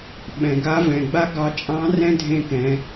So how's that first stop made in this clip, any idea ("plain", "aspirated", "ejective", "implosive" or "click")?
implosive